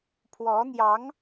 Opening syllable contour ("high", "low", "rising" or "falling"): rising